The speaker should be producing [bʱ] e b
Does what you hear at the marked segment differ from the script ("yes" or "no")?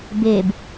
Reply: yes